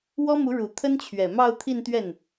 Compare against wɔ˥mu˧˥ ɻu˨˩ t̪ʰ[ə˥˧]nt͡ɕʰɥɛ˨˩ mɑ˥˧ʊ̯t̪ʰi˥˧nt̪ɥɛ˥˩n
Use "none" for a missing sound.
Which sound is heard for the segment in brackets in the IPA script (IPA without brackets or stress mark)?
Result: ə˥